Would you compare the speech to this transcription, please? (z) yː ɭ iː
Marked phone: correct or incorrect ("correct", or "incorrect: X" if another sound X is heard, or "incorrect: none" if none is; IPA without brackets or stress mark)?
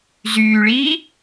correct